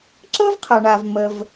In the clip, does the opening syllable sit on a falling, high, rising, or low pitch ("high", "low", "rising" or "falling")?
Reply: high